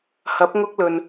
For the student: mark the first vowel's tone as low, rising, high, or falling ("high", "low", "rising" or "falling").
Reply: rising